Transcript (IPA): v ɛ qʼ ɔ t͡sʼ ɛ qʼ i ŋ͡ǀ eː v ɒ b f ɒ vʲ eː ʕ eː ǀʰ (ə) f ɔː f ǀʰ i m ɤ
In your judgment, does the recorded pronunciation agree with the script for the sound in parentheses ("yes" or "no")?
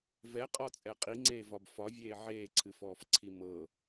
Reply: no